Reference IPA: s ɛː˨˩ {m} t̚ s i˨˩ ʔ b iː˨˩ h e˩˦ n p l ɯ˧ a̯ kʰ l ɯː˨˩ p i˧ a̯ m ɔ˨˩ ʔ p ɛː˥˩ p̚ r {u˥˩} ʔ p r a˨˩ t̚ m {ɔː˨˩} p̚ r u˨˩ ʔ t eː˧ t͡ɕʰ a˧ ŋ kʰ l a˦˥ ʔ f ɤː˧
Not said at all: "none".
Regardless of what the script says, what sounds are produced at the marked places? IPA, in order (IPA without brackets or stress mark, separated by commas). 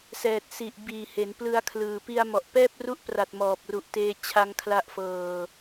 none, u˥˩, ɔː˨˩